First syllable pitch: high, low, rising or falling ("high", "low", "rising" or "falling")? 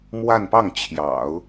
falling